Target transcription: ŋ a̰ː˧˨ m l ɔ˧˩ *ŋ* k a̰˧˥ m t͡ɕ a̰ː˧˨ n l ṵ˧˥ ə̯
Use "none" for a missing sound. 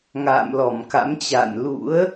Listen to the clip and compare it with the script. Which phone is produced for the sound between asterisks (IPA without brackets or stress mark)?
m